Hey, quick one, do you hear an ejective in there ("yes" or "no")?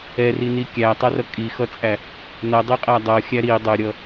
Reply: yes